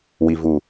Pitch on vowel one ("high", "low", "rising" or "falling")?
low